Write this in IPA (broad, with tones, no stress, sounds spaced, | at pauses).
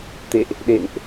t̪ ḛ˧˨ ʔ | ɗ ḛ˧˨ n ʔ